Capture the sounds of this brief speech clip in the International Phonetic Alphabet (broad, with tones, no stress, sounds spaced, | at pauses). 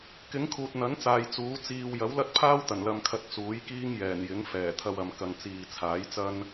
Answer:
k ɪ˨˥ ŋ kʰ uː˨ t̚ n̪ ɐ˨˥ n t͡s aː˨ j t͡s uː˨˥ t͡s iː˧ w j ɐ˨˥ w l ɐ˥ t̚ pʰ aː˥ w t̪ ɐ˨˩ n l ɐ˧ m kʰ ɐ˧ t̚ t͡s uː˨˥ j k iː˥ ŋ j ɛː˨˩ n j ɪ˨˥ ŋ f ɛː˨˩ t̪ʰ ɐ˧ w ɐ˨ m k ɐ˨˧ ŋ t͡s iː˨ t͡sʰ aː˨˥ j t͡s ɐ˥ n